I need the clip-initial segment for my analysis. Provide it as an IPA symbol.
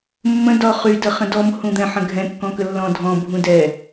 mː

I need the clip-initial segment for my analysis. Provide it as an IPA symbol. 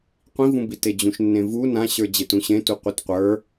qʷ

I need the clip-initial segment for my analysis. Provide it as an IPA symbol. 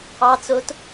ɑ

